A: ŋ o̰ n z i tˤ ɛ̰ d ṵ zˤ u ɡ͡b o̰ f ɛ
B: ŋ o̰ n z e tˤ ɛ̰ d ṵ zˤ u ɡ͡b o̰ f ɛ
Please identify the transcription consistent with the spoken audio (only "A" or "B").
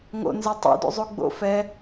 B